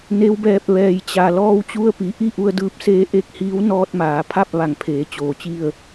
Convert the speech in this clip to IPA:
n e˧˥ w b ɛː˧ p̚ ʋ ɛː˩ j t͡ɕ a˩ l ɔː˧ w t͡ɕ u˧ ə̯ p i˩˧ ʔ i˥˨ ʔ u˧ ə̯ d ɯː˧ p̚ s eː˧˥ ʔ e˥˨ k̚ h iː˧˥ w n ɔː˧ t̚ m aː˩˧ pʰ a˥˨ p̚ ʋ a˧˩ ŋ pʰ eː˩˧ t͡ɕ oː˩ t͡ɕ i˥˨ ə̯

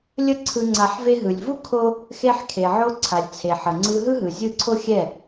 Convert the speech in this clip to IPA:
lʲ ə˦ ǀʰ ɯ˧ ŋ͡ǀ a˧ ħ v e˧ ɦ ɯ˨ lʲ v u˦ kʰ o˦ | x e˧ ħ kʰ e˨ ʕ o˧ ǀʰ a˨ lʲ t͡sʰ e˨ ħ ə˨ ŋ͡ǀ ɯ˧ ɦ ɯ˦ ɦ ɯ˨ zʲ ɯ˦˨ ǀʰ o˦ xʲ ɛ˦˨

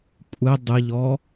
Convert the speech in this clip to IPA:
kʷʼ ɪ dˤ ɪ ʎ ɔ

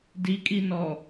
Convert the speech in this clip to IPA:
d i kʼ i n ɔ

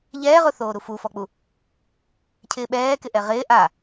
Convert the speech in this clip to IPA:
ʎ ɛː ʁ ʊ θ oː ɾ u f u f ɔ k͡p u | cʰ ɪː ɓ ɛː k ɪ ʔ ɛ ʁ ɪː ʔ a

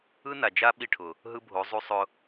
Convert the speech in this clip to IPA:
ɯ˦ n a˨ d͡ʒ a˦ ɓ i˦˨ ʈʰ ʊ˨ | ɦ ɯ˦ bʱ o˨˦ zˤ u˦ sˤ ʊ˦

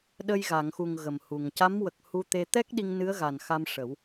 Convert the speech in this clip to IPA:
ɗ ə˧ j ɣ a˨˩˨ ŋ x u˨˩ ŋ ɣ ə˨˩ m h u˨˩ ŋ c a˧˥ m w ə˨˩ k̚ h u˧ t̪ e˧ t̪ ɛ˦˥ k̚ ɗ i˧ ŋ n ɨ˧˥ ə̯ ɣ a˨˩ n x a˧ m ʂ ə˨˩˦ w

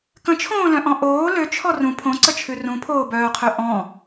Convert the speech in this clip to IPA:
k ə̃ t͡ʃʰ õː l œ̃ ʔ ɔ̃ ʔ oː l ø t͡ʃʰ ɔ r ũ pʰ õ ǀ ə t͡ʃʰ ʉ r ũ pʰ oː b œː qʰ ø ʔ ɔ̃

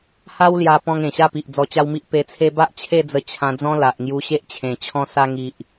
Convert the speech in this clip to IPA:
h a˦ w l j a˧ p ɔ̃˧ ŋ ẽ˨˩ ɕ a˥˧ p i˨ ʔ d͡z ɔ˧ t͡ɕ a˦ w m i˦ ʔ p e˧ t͡sʰ e˦ b a˦ ʔ t͡ɕʰ e˥˧ d͡z ə˧ t͡ɕʰ ã˧ d͡z ɔ̃˦ l a˨ ʔ ŋ j u˧ ɕ e˦ ʔ t͡ɕʰ ẽ˨˩ t͡ɕʰ ɔ̃˧ s a˧ ŋ i˨ ʔ

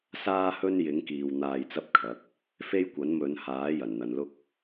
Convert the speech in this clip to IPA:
s aː˥ h ɵ˥ n j ɪ˨˥ ŋ k iː˨ w n̪ aː˧ j t͡s ɐ˥ p̚ kʰ ɐ˨˥ k̚ | f e˥ j kʷ ɐ˨˥ n m ɵ˨˧ n h aː˨˥ j ɐ˨˩ n n̪ ɐ˨ n l ʊ˥ k̚

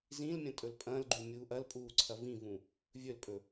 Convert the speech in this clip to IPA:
z ĩ l mʲ ɐ̃ tʼ ɵ l pʼ ɐ̃ l ɡ͡ǃ ʉ mʲ uː ʔ ɐ l pʼ uː ǀʰ ɐ v ĩ v ũ | vʲ ɵ l pʼ ɵ

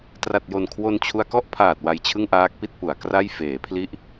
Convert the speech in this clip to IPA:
t r a˨˩ t̚ j o˨˩ n kʰ w o˧ n t͡ɕʰ u˧ a̯ k ɔ˥˩ ʔ pʰ aː˨˩ t̚ w a˧ j t͡ɕʰ ɯ˥˩ ŋ ʔ aː˦˥ k̚ p i˥˩ t̚ p u˩˦ a̯ k r a˥˩ j f eː˩˦ pʰ l i˦˥ ʔ

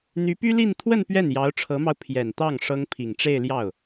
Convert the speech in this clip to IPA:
n̪ y˧˥ p y˥ l i˥˧ n t̪ʰ w ə˥˧ n p ɥ ɛ˥˩ n j ɑ˧˥ ʊ̯ ʈ͡ʂʰ ɤ˧˥ m ɑ˧ ʊ̯ pʰ j ɛ˨˩ n t̪ ɑ˥˩ ŋ ʂ ɤ˥ ŋ pʰ i˨˩ ŋ ʈ͡ʂ e˥˧ ɪ̯ l j ɑ˥˩ ʊ̯

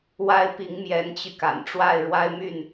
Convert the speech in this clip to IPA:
w a˥˩ ɪ̯ p i˧˥ ŋ m j ɛ˧˥ n t͡ɕ y˧ k a̰˨˩ n ʈ͡ʂ w a˥˩ ɪ̯ ɻ w a˥ ɪ̯ m y˥˩ n

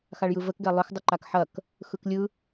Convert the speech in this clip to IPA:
x a ɭ j ɯ v ə k ɡ ɛ lˠ œ x dˤ ɯ ǃ a k ħ ɐ k | x ɯ k lʲ ɯ

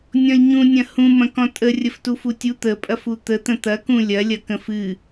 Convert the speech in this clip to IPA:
nʲ ɔ̃ lʲ ɲ ũ nʲ ɐ̃ h ũ m ɐ̃ k ɔ̃ tʼ ə rʲ ə f t u f u tʲ u t̪ ə pʼ ɐ f u t̪ ə t̪ ə̃ t̪ ɐ k ũ lʲ ɐ lʲ ɐ k ə̃ f ɨ

